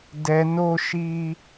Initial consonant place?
alveolar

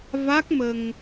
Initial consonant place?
labial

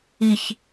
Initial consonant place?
palatal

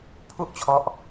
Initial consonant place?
labial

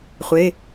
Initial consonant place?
uvular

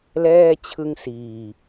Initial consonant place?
alveolar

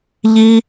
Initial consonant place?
palatal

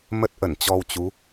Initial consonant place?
labial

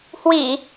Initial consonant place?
glottal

